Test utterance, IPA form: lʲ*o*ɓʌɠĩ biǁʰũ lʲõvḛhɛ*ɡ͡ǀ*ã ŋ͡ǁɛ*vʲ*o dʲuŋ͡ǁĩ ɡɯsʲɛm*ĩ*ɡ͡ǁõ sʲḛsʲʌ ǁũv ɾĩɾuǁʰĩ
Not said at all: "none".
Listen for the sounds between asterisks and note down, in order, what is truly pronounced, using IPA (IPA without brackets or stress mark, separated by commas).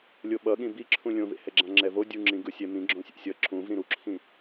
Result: o, ɡ͡ǁ, v, ĩ